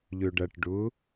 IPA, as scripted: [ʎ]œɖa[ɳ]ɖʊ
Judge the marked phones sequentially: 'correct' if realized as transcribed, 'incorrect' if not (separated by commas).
correct, incorrect